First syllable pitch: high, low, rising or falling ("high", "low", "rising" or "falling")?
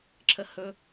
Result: high